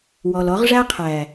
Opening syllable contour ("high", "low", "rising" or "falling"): low